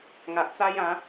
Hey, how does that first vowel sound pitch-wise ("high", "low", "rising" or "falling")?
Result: low